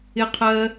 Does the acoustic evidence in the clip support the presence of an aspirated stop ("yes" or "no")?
yes